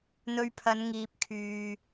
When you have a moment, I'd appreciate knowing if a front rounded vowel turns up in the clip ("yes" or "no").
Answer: yes